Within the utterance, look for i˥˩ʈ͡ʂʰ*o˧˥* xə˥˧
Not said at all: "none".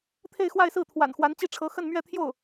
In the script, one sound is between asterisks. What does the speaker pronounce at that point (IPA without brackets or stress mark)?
ɤ˧˥